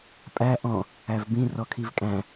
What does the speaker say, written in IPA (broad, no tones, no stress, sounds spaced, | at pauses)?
pʼ æ ʔ ɔ̃ | æ v b ĩ r ɔ kʰ i v kʼ æ̃